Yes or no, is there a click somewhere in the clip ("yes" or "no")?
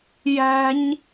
no